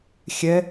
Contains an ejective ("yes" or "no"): no